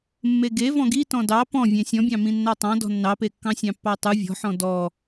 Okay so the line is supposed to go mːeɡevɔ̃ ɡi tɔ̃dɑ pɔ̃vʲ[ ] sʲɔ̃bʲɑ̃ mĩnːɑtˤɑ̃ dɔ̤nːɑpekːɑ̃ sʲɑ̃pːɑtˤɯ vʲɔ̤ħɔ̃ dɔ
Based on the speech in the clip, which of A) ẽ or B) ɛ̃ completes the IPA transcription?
A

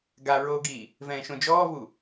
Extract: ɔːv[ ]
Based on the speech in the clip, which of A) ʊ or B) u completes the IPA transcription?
B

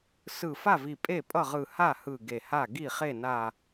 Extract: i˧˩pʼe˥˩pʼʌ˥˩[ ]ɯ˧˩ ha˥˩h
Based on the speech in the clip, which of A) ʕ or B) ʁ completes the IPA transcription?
B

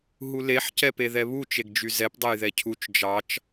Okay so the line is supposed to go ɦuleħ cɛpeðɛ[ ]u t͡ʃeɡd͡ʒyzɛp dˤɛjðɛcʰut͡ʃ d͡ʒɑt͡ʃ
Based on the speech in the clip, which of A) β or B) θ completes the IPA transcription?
A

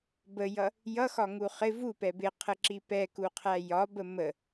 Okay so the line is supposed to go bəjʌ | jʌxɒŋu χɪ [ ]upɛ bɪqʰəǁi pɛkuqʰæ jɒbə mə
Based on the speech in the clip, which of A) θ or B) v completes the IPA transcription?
B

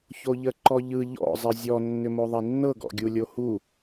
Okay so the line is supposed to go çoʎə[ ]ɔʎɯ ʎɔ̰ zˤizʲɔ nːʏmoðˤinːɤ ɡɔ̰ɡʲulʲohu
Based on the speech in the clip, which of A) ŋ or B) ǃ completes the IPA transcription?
B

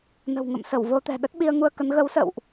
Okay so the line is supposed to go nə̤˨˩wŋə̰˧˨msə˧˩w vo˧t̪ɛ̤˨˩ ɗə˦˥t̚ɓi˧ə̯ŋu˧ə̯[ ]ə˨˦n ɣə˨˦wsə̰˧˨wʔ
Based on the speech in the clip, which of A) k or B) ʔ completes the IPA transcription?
A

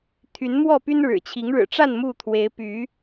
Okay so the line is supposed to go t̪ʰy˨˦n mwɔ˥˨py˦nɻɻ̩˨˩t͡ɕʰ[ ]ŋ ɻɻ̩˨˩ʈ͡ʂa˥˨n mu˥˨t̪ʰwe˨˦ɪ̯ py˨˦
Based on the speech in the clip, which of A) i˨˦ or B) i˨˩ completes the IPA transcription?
A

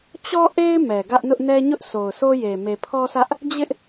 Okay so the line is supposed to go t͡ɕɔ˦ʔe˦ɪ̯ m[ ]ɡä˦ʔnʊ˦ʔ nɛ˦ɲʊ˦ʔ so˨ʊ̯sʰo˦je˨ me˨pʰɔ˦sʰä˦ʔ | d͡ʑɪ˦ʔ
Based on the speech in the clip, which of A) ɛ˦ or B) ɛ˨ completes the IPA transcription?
B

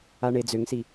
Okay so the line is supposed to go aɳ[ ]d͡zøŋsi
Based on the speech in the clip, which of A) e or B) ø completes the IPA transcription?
A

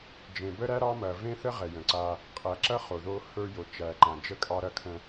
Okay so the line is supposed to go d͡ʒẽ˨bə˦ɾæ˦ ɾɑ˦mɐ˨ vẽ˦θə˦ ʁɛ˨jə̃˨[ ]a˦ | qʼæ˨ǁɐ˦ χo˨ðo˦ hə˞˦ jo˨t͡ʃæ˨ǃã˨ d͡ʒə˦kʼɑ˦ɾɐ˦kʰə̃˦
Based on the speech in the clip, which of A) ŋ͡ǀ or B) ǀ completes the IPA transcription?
B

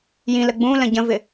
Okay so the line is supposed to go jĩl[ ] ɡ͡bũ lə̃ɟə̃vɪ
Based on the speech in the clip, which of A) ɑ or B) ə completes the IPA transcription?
B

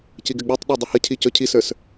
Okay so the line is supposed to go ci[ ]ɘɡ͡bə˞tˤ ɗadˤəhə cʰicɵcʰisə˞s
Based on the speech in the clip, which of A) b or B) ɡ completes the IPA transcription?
B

